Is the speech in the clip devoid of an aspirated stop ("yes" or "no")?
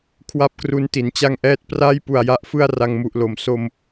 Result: no